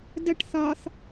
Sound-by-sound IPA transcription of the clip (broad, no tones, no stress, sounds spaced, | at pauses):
d ə ʈ θ ɒ θ